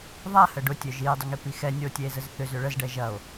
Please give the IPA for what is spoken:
ðˤ a h ə ɖ ʊ tʲ œ ʒ i e̯ dˤ ʏ ŋ i p i x ɛ nʲ ɔ o̯ tʲ ɛ e̯ z ə z θ ʏ z ʏ ɭ ə z ɖ ɛ ʒ ɐ o̯

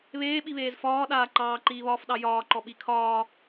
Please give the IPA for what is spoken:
β eː ɓ i β eː z f ɒː ɗ aː ǃ ɑː ǃ iː β ɒː f ɗ ɑ j ɒː ǃ ɔ ɓ i kʰ ɒː

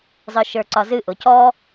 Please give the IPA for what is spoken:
zˤ ə˞ ʃ ə˞ ǀ ɒ z ɨ ʔ ʊ c ɔ

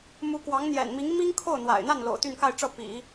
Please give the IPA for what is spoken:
m u˧˥ k w ɑ˧˥ ŋ n̪ j ɛ̰˨˩ n m i˧˥ ŋ m i˥ ŋ kʰ o˥˩ ʊ̯ n̪ w a̰˨˩ ɪ̯ n̪ a˥˩ n l o̰˨˩ ʊ̯ t̪ y˥˧ n k a˥˧ ɪ̯ ʈ͡ʂ ɤ˥˩ p ḭ˨˩˦

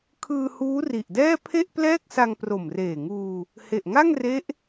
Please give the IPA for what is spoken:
kʰ ɯː˧ h uː˦˥ r i˨˩ ʔ d ɛː˥˩ pʰ e˥˩ ʔ p l ɛː˥˩ k̚ s a˧ ŋ p r o˨˩ m r eː˨˩ ŋ uː˧ | h e˨˩ ʔ ŋ a˥˩ ŋ r e˦˥ ʔ

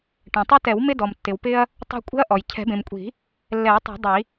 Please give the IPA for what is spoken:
ʈ ɛ̃˩ tˤ i˦ t ɛ˨˩˦ w m ɪ˦ d ɔ˩ m tː ɪ˩ w p ɪ˦ ɐ̯ | tˤ e̤˦ kʷʼ e̤˦ ɐ̯ ʔ ɔ˩ j cʰ ɛ̤˨˩˦ b ẽ˩ m kʷʼ i̤˨˩˦ | lː ɛ˨˩˦ ɐ̯ tˤ e̤˨˩˦ dˤ i˨˩˦

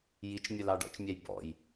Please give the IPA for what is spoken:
j i t͡ʃ mʲ ʊ l ɑ ɖ ɔ̰ t͡ʃ mʲ æ j b ɔ̰ j

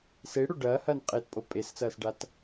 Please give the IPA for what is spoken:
s e ɽ o ɖ ɐː h ɐː n qʼ e t pʼ o pʼ e s t͡s ɐː s ɖ a t

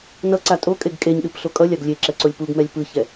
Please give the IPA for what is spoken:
n ʌ ǀ a tʼ o kʼ e ɡ kʼ e ɲ ɗ ɯ p ɬ o kʼ ʌ lʲ a ɡ lʲ e ǁ ɛ ǀ o lʲ p u ɡ m ɛ lʲ p ɯ ç ɛ

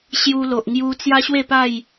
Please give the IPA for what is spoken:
ɕ j u˧ l o˨ ʔ ŋ j u˧ t͡s j a˦ ɕ w e˥˧ p a˥˧ j

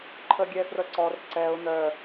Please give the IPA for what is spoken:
ǃʰ ə ɡʲ ɛ f r ə ǀ ɔ r ǀ ɛ ʊ̯ n̪ œ

